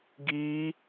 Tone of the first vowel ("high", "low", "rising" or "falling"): high